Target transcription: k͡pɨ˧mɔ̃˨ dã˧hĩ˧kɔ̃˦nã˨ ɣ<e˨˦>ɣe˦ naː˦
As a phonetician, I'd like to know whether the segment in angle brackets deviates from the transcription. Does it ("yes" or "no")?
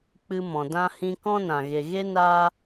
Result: yes